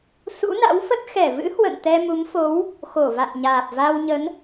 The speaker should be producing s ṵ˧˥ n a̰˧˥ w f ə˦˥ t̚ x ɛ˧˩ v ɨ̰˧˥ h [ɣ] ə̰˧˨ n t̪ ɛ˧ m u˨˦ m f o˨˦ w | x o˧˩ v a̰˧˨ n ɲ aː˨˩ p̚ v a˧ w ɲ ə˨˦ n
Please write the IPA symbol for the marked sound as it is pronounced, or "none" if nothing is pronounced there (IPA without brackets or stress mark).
w